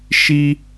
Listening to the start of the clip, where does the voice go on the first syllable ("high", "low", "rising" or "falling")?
high